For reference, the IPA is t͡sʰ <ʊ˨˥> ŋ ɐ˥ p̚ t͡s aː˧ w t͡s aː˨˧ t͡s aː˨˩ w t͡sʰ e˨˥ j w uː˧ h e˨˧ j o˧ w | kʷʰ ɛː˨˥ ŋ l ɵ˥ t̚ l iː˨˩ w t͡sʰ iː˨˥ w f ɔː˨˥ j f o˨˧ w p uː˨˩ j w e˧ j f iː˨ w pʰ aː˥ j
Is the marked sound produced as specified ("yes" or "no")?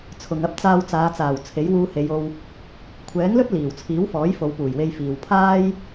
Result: no